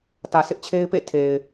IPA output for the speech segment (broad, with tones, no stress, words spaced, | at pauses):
tä˨sɪ˦ʔ t͡ɕʰe˦ɪ̯pḛ˦˨ tʰe˨ɪ̯